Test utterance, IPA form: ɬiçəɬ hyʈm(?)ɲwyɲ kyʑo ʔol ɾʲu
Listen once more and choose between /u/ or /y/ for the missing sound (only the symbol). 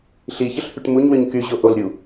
u